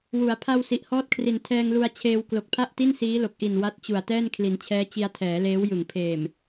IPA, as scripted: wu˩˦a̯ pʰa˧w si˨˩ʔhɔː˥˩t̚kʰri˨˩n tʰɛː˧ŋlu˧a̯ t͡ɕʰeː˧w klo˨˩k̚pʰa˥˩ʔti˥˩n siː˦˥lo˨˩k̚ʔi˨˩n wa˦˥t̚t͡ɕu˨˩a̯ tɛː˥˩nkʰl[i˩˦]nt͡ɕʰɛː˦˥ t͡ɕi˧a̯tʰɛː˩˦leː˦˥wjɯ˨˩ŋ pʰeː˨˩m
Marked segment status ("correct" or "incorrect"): correct